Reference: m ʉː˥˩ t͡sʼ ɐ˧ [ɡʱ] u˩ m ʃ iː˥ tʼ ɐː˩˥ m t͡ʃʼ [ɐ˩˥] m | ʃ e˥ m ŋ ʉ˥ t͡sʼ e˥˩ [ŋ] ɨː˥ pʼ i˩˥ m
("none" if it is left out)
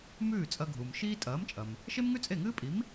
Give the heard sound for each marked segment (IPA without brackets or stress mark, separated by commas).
ɡʱ, ɐ˩, ŋ